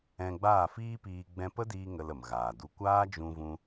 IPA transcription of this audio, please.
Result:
ɛ̃˧ ɡ͡b aː˦˨ f iː˦ p iː˧ ɡ͡b ɛ̃˧ p ə˦ d iː˧ ŋ ə˧ l ə˨ m ɣ aː˨ d u˧ kʷ aː˦ d͡ʒ ũ˧ v ũ˧

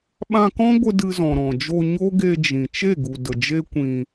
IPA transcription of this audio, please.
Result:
ɓ ã˧ k ɔ̃˦ ɡʷ ə˧ d ɨ˧ z ɔ̃˨ ɾ ɔ̃˨ d͡ʒ o˧ ɲ o˦ ɡ e˧ d͡ʒ ĩ˨ t͡ʃ e˦˨ ɡ u˨ d ə˨ d͡ʒ e˦ kʷ ĩ˧

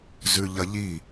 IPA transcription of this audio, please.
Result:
z ʉ ʎ ɐ ʎ i

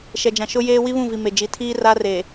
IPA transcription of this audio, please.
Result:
ʃ ɛ˨ d͡ʒ ã˨ ʃ ʊ˦ j eː˦ w i˦ β ũ˦˨ v i˨ m e˨ d͡ʒ i˨ tʰ iː˦ r a˦ r e˨

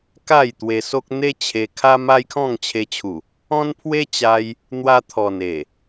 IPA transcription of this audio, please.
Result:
k a˥˧ j t̪ w e˧ s o˦ k̚ n̪ e˦ t͡ɕʰ e˧ kʰ a˦ m a˦ j kʰ ɔ̃˥˧ ŋ t͡ɕʰ e˧ t͡ɕʰ u˨˩ | ɔ̃˦ n pʰ w e˦ t͡ɕ a˧ j | n̪ w a˧ t̪ʰ ɔ˨˩ n e˨˩

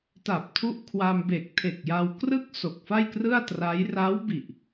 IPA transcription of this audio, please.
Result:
t a˨˩ p̚ tʰ u˥˩ ʔ kʰ w a˧ m b e˨˩ k̚ tʰ e˨˩ k̚ j a˧ w k r ɯ˥˩ k̚ s o˨˩ k̚ f a˥˩ j k r ɯ˥˩ a̯ t r a˦˥ j r aː˦˥ w b i˨˩ ʔ

